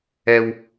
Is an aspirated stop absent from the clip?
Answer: yes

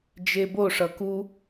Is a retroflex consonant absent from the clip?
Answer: no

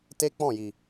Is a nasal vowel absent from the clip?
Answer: no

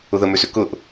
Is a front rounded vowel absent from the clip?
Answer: no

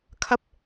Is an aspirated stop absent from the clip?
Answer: no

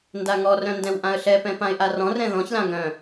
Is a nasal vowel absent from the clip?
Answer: no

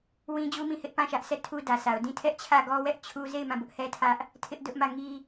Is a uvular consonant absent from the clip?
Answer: yes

